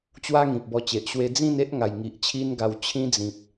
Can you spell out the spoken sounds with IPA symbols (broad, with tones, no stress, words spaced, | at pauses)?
t͡ɕwa˦ ŋĩ˨p̚bɔ˧t͡ɕe˨ʔ ɕwe˧ d͡zĩ˥˧ne˦ʔ ŋa˨˩jŋi˨ʔt͡ɕʰi˦nɡa˧w t͡ɕʰĩ˦d͡zĩ˨p̚